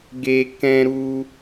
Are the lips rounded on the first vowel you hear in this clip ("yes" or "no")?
no